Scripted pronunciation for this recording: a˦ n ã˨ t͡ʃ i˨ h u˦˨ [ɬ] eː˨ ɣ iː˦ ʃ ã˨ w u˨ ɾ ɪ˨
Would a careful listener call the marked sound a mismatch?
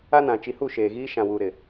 yes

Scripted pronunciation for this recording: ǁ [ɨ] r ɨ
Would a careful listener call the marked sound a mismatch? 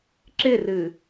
yes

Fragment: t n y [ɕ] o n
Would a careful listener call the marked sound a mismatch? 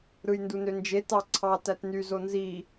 yes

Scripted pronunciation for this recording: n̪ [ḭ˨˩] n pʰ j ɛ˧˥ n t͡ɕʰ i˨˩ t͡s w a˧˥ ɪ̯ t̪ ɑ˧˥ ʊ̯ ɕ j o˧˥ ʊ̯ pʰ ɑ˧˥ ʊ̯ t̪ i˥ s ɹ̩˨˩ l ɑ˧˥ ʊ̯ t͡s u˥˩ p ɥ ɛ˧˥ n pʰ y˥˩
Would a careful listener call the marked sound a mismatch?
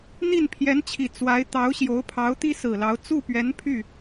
yes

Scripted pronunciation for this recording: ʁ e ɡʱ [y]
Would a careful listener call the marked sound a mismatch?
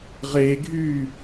no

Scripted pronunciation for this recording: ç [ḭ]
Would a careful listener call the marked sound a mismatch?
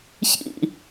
no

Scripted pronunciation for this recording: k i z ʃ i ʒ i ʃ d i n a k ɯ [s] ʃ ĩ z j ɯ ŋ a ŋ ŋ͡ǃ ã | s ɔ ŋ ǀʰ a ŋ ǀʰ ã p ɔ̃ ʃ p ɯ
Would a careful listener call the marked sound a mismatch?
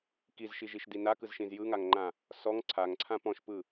yes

